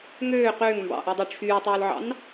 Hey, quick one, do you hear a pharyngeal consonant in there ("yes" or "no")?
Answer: yes